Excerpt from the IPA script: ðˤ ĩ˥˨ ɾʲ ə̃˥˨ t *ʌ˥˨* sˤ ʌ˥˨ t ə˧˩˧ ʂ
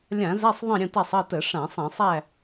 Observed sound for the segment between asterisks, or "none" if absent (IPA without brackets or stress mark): a˥˨